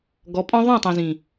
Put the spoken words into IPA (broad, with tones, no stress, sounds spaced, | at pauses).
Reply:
ɡ ɔ˨˦ pʼ ɔ̃˦ ðˤ œ̃˦˨ tˤ ĩ˨ z ĩ˨